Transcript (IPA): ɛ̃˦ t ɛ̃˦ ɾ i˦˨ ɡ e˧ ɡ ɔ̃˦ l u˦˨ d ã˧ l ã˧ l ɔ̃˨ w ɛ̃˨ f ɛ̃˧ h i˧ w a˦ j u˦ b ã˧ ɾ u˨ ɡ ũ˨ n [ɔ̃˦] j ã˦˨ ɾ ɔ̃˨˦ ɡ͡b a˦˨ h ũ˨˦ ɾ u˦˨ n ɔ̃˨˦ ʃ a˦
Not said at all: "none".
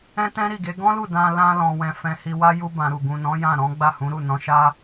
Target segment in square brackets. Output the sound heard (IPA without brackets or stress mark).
ɔ̃˨˦